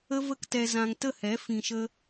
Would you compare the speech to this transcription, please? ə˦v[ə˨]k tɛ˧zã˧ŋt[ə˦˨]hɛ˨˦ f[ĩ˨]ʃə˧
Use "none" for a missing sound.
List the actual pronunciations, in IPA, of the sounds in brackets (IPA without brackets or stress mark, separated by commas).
ə˦, ə˦˨, ĩ˨